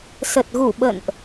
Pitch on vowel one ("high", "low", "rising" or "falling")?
low